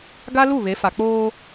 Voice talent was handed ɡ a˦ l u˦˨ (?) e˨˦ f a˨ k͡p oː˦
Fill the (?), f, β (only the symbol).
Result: β